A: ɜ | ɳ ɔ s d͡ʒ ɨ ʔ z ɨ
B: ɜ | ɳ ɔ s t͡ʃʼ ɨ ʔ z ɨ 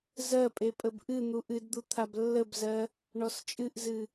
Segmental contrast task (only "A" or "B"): B